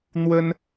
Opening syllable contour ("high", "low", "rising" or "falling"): high